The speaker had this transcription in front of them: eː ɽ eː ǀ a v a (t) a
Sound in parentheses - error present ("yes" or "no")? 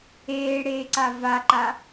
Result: yes